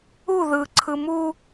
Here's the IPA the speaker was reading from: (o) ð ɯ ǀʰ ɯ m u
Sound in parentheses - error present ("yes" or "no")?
yes